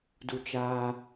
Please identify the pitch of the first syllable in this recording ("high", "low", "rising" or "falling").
high